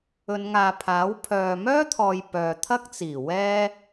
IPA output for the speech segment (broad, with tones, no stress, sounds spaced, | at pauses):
ɵ˨˧ n ŋ aː˨ pʰ aː˨˥ w pʰ œː˨ m œː˥ t̪ʰ ɔː˨ j p œː˨ t̪ʰ ɐ˥ k̚ t͡s iː˨˩ w ɛː˥